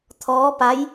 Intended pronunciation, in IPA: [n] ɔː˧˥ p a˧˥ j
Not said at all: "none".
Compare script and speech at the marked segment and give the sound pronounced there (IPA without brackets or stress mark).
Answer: t̪ʰ